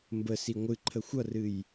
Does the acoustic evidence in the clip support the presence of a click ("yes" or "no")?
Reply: yes